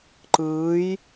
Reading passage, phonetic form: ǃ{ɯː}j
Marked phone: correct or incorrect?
correct